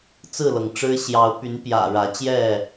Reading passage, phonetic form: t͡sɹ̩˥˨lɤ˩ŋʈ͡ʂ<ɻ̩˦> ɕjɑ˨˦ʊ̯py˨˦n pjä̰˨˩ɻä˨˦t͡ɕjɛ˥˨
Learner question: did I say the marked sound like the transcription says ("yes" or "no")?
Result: yes